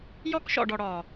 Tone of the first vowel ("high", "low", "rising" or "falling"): high